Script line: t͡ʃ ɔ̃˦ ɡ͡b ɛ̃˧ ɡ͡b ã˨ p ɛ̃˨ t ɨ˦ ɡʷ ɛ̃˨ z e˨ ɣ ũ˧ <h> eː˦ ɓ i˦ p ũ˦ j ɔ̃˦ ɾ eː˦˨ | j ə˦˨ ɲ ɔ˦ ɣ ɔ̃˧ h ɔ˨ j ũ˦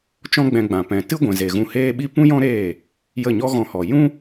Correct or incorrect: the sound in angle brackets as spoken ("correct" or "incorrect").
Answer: correct